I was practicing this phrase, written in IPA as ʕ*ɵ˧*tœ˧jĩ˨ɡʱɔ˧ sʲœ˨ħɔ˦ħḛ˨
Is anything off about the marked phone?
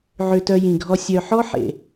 yes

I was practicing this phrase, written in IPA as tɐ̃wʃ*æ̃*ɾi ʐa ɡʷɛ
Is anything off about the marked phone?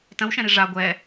yes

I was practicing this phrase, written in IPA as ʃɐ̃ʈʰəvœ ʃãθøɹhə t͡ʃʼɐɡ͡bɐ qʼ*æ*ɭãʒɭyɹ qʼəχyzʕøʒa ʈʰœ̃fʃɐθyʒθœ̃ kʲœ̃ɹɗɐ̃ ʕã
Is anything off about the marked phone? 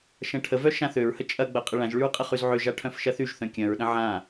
yes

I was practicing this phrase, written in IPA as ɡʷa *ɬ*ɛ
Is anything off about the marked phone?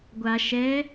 yes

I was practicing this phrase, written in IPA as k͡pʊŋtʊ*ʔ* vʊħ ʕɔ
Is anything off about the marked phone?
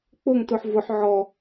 yes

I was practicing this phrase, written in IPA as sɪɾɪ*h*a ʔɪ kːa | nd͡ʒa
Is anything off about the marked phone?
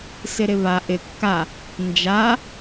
yes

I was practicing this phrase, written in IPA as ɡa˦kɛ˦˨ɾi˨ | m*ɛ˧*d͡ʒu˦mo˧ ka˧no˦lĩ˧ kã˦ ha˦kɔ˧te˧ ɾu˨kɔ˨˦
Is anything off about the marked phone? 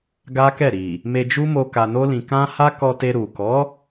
yes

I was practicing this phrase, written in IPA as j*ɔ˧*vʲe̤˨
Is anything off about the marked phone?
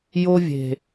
yes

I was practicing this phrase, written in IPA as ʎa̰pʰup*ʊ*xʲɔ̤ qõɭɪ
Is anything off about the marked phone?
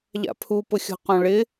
no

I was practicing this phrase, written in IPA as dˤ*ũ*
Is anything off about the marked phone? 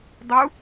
yes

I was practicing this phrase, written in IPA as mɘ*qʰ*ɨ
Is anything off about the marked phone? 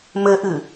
yes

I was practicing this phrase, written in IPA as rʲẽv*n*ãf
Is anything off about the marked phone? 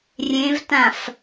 yes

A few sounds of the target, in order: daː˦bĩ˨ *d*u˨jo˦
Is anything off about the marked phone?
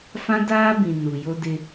yes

